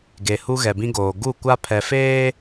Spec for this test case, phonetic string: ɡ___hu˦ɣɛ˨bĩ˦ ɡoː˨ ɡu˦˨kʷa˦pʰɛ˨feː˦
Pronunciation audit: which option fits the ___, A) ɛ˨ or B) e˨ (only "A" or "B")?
B